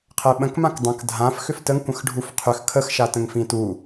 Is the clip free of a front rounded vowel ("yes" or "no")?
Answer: no